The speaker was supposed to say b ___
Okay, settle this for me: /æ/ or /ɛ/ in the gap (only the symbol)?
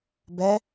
ɛ